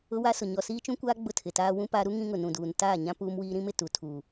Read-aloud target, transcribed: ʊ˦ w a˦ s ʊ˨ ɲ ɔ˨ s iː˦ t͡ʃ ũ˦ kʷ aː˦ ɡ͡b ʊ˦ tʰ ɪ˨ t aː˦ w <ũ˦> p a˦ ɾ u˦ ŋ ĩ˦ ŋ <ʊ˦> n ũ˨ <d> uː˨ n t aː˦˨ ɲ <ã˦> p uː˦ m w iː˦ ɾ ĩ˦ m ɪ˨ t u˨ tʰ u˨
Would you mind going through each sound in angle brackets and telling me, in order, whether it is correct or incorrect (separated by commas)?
correct, incorrect, correct, correct